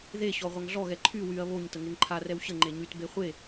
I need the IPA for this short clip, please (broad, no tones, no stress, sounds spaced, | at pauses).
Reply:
ð e ɕ ɔ ʁʷ a ŋ ɮ ɔ ɣ ɛ ǃʰ y w y ɐ̯ β o ɲ t ə ŋ e ŋ ǃʰ a r ɛ w ɕ ə ŋ͡ǃ e ɲ y t b e χʷ e